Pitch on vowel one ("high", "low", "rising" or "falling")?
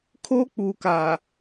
high